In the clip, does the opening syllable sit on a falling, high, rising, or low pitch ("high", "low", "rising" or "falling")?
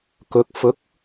rising